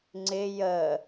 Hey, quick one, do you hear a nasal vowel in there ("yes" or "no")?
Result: no